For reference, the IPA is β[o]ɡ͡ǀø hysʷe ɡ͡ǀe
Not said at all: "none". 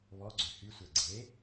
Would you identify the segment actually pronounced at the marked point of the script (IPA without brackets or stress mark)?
ɔ